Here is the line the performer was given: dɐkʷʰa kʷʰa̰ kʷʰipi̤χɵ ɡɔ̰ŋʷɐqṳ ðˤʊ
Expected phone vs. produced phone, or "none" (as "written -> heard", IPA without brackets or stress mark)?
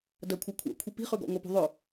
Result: q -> p